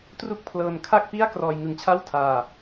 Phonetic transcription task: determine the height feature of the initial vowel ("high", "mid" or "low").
high